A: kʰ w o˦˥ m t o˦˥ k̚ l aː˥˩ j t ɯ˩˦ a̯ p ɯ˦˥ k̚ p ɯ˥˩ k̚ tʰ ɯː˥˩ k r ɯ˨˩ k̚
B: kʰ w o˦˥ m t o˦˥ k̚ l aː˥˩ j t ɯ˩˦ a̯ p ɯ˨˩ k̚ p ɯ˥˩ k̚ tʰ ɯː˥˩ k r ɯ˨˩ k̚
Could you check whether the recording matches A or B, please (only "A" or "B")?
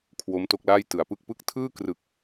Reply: A